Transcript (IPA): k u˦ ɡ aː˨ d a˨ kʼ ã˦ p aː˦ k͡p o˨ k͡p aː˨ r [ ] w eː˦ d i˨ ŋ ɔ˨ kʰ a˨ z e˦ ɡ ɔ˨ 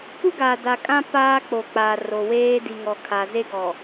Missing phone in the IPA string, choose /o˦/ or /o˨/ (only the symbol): o˨